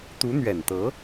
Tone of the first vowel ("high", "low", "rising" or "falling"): rising